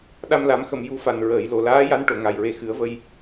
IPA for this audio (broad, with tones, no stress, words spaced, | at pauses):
ɗa˧mla˨˩˦mxə˨˩˨m ju˧˥fa˨˩n ɹəː˨˩˨jlo˨˩laː˧˥ja˧˥n ʈo˨˩˨ŋa˨˩jɹe˧ xɨ˨˩˦ə̯və˧j